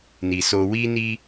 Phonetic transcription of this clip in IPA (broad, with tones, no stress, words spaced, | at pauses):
ni˨so˧ wi˧ni˧